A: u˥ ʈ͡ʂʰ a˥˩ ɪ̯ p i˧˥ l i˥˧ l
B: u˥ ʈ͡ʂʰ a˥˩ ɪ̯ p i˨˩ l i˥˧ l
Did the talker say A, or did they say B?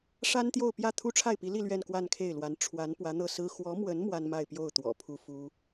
A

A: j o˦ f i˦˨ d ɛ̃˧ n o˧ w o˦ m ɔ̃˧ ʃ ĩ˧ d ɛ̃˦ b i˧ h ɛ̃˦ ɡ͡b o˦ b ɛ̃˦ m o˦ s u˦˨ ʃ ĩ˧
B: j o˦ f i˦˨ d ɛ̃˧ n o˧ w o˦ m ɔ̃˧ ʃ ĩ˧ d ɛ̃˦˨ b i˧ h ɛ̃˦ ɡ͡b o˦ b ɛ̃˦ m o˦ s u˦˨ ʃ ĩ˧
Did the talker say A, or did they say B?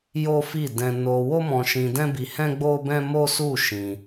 A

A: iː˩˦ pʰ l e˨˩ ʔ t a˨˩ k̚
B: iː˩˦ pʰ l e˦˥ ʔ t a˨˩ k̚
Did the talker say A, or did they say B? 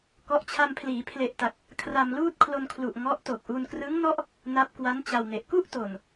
A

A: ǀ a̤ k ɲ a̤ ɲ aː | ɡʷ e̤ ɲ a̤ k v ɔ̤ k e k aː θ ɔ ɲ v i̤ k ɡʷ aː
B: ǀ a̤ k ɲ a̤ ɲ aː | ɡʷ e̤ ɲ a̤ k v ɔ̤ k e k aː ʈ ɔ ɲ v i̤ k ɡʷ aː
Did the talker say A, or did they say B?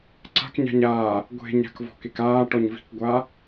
B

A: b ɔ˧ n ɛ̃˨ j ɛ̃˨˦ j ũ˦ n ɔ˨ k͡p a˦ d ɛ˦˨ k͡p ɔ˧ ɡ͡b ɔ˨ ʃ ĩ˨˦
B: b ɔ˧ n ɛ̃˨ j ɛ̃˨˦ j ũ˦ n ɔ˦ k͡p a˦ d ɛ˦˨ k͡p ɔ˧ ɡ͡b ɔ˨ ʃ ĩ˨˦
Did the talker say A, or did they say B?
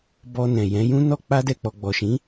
B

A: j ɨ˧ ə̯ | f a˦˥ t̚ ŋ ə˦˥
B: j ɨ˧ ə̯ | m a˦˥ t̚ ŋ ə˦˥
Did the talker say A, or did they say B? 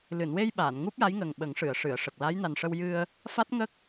A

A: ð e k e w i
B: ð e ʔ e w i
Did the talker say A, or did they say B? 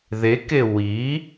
A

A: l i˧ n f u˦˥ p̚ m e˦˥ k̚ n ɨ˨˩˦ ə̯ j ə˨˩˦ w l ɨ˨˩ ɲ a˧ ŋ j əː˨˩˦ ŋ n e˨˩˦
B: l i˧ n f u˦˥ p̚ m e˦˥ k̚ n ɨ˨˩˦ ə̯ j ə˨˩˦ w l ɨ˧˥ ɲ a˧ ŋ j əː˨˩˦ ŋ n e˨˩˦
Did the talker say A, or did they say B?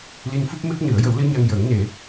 B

